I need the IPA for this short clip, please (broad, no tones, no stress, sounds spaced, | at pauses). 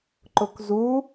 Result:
ǃ ʊ k z u